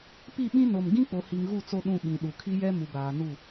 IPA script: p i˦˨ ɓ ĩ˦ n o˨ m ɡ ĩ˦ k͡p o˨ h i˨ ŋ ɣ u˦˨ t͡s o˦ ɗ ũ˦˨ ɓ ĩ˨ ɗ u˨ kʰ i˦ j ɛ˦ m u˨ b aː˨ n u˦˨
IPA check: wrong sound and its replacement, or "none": none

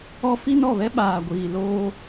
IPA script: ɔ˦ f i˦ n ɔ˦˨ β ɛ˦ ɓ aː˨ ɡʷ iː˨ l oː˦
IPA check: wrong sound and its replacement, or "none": none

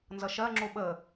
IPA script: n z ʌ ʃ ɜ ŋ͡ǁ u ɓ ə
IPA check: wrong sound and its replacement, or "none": none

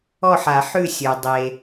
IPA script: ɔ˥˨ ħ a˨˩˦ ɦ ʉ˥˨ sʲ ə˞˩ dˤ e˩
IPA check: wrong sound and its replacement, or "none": ɦ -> ħ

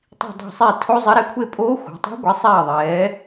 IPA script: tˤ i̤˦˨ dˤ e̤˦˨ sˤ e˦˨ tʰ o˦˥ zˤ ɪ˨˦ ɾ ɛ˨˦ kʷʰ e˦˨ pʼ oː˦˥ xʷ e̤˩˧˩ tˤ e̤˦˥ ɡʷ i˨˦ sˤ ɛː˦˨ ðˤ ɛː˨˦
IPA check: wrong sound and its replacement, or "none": none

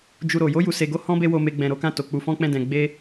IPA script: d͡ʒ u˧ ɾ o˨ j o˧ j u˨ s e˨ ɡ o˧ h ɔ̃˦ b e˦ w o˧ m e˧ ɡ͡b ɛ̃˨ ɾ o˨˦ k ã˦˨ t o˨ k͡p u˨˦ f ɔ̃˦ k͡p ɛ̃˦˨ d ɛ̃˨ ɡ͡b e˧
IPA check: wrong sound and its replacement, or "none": none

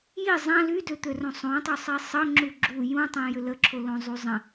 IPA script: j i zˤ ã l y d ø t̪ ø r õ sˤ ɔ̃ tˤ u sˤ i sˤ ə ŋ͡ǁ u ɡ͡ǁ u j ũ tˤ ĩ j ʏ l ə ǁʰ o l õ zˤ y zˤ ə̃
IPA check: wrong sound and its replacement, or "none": ɔ̃ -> õ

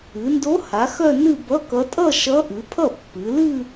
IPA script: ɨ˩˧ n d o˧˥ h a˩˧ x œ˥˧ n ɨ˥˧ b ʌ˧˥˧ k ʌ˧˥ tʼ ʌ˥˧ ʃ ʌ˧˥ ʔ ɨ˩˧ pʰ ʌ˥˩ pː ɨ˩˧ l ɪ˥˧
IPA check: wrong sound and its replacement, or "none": ɪ˥˧ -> ɨ˥˧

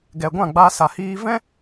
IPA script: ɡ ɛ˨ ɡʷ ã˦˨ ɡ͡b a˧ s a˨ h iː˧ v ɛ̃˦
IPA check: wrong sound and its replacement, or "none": none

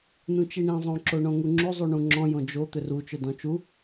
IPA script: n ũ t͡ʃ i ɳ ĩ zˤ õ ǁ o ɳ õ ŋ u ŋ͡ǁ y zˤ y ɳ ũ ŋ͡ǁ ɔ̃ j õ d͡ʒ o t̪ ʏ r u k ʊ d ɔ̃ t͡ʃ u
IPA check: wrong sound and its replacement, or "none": k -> t͡ʃ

